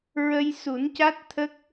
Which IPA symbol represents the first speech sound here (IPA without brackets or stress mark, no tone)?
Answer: ɹ